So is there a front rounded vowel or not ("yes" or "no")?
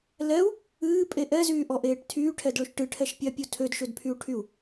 yes